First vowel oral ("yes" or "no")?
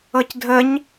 yes